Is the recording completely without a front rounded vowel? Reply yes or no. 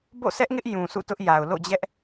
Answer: yes